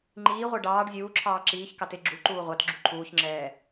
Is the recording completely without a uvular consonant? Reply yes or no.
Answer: no